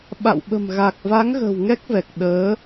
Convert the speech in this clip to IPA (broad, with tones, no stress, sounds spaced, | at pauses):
ɓ a̰˧˨ w ɓ ə̤˨˩ m ɣ a˨˩ k̚ v a˨˦ ŋ ɣ ə̤˨˩ w ŋ ɛ˦˥ k̚ v ɛ˨˩ k̚ ɗ əː˨˦